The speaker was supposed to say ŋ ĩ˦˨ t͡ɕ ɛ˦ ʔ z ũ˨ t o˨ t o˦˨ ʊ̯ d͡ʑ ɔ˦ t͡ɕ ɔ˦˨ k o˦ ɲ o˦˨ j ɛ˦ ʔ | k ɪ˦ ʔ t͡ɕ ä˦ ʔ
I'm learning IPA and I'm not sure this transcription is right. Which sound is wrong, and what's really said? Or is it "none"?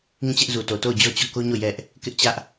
ũ˨ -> u˨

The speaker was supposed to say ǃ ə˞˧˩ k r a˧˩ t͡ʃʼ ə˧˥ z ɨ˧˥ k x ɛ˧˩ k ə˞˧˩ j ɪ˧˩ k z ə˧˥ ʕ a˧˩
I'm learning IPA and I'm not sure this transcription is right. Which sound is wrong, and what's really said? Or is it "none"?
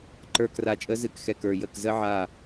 ɪ˧˩ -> ə˧˩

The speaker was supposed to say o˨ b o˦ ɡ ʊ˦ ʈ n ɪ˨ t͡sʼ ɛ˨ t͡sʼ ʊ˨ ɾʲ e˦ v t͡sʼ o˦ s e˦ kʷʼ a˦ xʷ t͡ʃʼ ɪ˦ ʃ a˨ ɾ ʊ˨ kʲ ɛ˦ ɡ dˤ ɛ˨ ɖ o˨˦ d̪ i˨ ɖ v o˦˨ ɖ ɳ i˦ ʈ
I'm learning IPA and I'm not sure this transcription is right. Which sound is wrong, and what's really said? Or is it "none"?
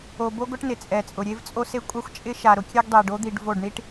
none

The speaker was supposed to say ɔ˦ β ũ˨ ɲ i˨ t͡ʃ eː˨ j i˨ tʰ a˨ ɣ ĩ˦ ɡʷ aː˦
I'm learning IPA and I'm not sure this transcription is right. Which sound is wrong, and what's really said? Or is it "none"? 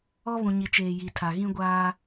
none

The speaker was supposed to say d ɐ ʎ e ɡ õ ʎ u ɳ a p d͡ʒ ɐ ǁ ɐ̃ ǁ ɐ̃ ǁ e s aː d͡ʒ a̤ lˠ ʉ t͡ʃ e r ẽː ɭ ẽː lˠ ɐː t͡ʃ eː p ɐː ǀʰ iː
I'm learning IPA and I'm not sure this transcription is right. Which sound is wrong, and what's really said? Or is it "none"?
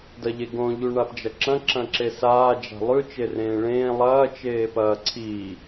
none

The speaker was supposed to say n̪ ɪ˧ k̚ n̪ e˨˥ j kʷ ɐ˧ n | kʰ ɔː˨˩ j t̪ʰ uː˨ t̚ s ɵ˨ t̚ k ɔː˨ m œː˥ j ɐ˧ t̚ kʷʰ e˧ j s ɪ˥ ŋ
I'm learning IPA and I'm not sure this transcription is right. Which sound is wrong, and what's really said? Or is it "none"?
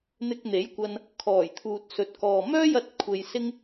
none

